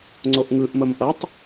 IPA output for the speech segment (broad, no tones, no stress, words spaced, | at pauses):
ŋ͡ǀoʔŋɯʔ məmʔʌtˤ